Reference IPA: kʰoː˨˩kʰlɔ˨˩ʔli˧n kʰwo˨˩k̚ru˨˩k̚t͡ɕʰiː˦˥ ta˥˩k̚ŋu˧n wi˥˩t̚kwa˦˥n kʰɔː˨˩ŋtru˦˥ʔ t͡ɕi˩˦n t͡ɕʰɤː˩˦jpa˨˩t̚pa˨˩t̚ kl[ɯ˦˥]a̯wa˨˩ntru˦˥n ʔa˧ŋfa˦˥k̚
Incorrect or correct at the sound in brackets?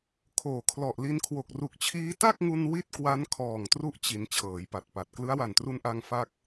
correct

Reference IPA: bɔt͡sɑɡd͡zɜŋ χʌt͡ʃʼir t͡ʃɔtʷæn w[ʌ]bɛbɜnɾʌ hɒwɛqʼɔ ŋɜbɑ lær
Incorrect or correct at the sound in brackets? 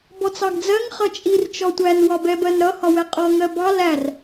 incorrect: ɒ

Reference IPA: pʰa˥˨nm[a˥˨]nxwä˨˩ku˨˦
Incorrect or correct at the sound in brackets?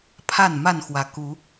correct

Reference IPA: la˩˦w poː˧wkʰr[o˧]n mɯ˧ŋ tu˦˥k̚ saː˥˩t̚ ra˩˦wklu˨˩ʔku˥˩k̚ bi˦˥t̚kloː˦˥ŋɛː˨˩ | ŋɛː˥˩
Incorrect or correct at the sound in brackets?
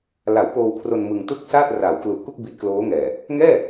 correct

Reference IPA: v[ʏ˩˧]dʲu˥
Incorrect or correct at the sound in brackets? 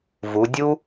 incorrect: u˩˧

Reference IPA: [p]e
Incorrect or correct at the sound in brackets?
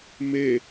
incorrect: m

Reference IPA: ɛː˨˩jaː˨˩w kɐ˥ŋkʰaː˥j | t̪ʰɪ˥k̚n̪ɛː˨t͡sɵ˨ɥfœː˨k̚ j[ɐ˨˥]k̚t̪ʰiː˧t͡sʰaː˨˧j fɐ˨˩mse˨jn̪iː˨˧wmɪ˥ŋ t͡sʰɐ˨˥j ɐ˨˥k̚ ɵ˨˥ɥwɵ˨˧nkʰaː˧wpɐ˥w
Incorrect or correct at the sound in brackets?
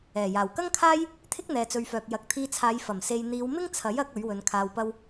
correct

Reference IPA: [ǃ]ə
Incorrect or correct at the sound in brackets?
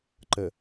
correct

